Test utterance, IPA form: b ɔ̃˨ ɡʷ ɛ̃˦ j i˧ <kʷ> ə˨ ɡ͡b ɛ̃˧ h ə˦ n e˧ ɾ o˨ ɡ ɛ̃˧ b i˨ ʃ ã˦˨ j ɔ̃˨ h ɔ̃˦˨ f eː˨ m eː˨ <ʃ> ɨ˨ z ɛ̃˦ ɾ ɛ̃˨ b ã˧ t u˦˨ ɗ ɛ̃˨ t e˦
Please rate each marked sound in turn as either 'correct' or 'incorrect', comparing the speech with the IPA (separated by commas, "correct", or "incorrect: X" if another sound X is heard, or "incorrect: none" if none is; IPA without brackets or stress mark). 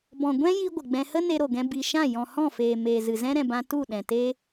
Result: incorrect: ɡʷ, incorrect: z